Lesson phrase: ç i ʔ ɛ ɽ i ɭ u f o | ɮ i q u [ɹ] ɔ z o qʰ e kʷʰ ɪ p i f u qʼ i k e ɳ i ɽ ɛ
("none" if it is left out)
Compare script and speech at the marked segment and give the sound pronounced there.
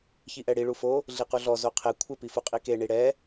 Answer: ɮ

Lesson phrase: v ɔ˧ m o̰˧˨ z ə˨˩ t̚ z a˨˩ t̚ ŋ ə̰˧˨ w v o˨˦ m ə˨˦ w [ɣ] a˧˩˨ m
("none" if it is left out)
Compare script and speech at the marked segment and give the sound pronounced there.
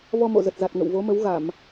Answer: ɣ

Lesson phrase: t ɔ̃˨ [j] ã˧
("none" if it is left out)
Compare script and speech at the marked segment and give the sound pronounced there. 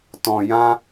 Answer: j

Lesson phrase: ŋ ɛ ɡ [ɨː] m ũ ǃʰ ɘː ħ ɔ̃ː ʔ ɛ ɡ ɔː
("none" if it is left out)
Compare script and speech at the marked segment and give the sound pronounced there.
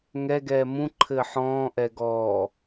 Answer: ɛː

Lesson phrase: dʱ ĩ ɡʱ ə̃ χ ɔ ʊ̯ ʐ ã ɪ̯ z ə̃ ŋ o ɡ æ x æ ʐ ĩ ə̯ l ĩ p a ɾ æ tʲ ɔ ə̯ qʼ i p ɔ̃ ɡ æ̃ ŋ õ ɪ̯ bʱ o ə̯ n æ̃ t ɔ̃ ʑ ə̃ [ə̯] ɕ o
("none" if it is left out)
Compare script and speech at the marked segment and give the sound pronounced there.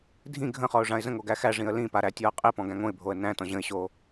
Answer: ɪ̯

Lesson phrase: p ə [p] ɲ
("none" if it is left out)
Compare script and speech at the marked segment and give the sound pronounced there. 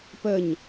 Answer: none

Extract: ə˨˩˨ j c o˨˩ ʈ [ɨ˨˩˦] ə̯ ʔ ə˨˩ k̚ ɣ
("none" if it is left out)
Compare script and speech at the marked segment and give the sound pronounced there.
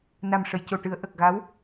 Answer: ɨ˨˩˦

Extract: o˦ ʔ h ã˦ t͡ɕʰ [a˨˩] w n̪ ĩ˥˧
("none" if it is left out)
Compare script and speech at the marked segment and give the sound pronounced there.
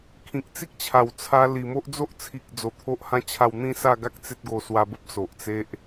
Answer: a˥˧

